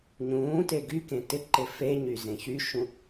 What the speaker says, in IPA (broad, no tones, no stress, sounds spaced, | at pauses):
ɲ ũː t e ɡ y k ẽ t ɪ ǃ ɪ f e ɲ y z ẽ ç y ʃ ũ